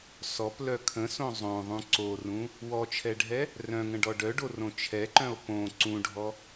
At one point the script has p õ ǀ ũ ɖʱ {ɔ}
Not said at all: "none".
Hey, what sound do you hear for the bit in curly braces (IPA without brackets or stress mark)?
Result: ɔ